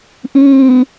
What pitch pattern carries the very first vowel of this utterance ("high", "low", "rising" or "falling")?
low